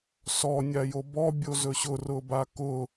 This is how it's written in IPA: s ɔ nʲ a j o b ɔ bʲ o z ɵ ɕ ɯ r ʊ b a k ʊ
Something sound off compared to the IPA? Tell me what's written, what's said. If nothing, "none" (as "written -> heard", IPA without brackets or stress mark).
ɯ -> ʊ